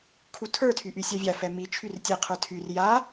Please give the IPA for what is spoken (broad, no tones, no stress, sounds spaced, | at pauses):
kʰ u tʰ ə˞ tʰ y ʔ y sʲ a vʲ a f ɛ m i t͡ʃʰ y r tʲ ɛ qʰ ə˞ tʰ y r j a